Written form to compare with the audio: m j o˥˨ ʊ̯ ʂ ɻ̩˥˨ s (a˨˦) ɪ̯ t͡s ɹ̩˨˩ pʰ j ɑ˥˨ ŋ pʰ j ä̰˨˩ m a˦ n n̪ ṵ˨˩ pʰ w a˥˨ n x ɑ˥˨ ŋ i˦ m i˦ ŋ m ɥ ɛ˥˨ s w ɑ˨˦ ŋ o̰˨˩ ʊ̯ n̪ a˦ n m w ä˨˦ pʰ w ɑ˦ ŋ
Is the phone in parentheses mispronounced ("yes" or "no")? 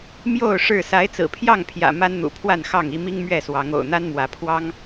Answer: no